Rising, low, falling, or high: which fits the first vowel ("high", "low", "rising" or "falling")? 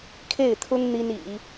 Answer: falling